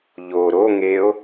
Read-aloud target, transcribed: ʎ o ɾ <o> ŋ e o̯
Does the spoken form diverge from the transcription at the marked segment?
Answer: no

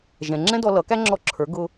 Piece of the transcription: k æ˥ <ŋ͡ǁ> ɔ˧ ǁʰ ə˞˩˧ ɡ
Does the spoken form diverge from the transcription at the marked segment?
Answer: no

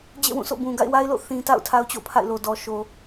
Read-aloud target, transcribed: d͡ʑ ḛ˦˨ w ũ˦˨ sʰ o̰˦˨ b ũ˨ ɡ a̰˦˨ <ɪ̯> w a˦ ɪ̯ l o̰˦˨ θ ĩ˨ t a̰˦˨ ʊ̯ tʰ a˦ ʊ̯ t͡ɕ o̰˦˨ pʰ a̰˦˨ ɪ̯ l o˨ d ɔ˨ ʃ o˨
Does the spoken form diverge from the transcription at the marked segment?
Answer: no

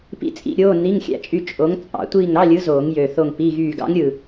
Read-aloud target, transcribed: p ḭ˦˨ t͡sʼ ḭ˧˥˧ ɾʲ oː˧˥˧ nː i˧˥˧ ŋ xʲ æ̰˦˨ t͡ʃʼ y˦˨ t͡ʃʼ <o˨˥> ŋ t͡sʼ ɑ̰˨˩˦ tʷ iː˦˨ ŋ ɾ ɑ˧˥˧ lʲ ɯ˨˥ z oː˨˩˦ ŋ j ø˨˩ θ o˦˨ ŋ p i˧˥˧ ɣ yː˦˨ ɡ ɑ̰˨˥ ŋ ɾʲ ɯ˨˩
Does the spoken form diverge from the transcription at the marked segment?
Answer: no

